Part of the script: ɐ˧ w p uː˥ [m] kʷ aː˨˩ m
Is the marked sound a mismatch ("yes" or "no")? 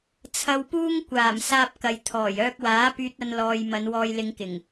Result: yes